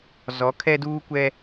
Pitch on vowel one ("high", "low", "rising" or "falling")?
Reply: rising